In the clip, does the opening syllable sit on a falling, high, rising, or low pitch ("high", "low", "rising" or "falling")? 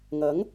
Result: rising